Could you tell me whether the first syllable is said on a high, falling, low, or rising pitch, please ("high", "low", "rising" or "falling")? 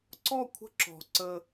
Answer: falling